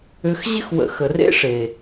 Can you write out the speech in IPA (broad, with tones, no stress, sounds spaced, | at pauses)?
ʏ˧ x ʑ ɪ˦ x w ə̰˨ x ə˨ r ḛ˦ ʂ e˨